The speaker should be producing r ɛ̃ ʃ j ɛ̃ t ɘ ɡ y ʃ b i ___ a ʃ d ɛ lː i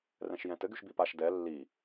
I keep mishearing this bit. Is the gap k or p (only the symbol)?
p